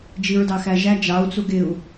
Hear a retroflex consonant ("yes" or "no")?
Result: no